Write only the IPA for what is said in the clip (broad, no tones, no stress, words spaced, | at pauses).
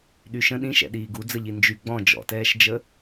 ɗyʃə̃ ɗĩʃɛ̰ɗiː ɡud͡zəʎi nd͡ʒy ɡ͡bɔ̃ d͡ʒɔ̰tɛːʃd͡ʒə